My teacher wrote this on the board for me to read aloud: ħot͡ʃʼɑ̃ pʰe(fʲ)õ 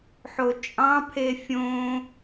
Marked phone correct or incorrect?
correct